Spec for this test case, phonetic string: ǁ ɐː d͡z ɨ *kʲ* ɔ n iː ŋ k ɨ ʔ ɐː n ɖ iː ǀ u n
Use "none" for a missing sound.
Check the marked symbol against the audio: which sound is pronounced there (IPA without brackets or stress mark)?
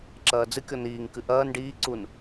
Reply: kʲ